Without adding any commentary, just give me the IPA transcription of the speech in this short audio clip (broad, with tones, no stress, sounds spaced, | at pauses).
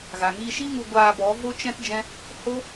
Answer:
ɣ a˨ ŋ iː˧ ʃ i˦ ŋ u˧ ɡʷ aː˧ b ɔ˨˦ v o˦ t͡ʃ ɛ̃˦ t d͡ʒ ɛ̃˦ | h o˦